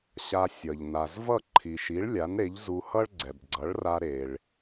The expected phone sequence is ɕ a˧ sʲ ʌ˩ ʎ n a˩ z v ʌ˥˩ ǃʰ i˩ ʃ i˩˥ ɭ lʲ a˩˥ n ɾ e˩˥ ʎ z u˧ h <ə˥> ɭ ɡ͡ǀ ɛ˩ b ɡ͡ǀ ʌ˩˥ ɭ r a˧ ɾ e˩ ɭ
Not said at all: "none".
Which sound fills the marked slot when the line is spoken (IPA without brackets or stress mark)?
ʌ˥